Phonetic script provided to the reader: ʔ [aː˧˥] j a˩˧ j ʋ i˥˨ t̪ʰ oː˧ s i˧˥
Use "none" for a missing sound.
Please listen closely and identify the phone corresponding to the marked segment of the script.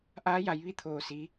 aː˧˥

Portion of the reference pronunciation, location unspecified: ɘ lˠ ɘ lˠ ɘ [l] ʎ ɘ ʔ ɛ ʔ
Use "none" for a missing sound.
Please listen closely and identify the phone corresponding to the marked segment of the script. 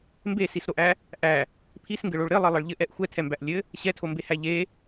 ɭ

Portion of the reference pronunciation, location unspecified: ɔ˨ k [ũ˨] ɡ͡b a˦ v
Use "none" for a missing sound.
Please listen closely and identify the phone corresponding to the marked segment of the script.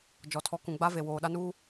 ũ˨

